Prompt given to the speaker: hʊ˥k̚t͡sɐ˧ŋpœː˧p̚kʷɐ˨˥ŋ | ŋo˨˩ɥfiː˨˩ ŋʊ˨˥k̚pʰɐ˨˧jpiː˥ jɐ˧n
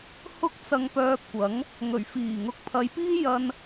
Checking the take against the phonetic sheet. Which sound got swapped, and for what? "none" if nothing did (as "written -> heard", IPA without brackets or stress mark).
o˨˩ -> ɵ˨˩